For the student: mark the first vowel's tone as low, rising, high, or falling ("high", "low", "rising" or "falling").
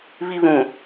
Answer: high